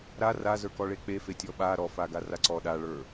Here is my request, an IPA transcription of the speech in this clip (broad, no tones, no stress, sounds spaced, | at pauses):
ɾ a r a z ə˞ k ɔ ɭ e k͡p e f e tʲ ɔ ɓ a ɾ ɔ f a ɡ a r a ǀ ɔ ɗ a ɭ ə˞